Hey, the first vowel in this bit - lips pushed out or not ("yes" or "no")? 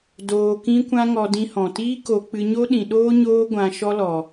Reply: yes